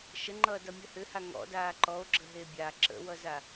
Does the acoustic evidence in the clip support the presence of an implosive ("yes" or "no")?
no